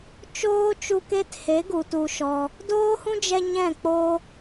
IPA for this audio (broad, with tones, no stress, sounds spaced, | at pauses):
t͡ʃ oː˦ t͡ʃ u˧ k e˦ t h e˨˦ ɡ u˨ t u˧ ʃ ɔ˧ | d oː˦ h ũ˦ d͡ʒ ɛ˧ ɲ ɛ̃˦˨ k͡p o˦